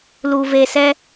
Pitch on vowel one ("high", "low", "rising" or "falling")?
low